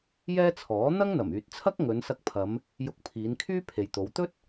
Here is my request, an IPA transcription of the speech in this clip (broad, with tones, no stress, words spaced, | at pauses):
jɛː˥t͡sʰɔː˨˥ n̪ɐ˥ŋn̪ɐ˨˩myː˨t̚t͡sʰɐ˥k̚ ŋɵ˨˧nsɐ˧k̚pʰɐ˨˧m | jʊ˧k̚pʰiː˨˧nkʰyː˥ pʰe˨jt̪o˨˧w t̪ɵ˥t̚